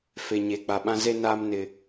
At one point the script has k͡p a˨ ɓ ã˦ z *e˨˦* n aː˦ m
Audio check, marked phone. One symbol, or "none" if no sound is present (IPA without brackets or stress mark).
e˦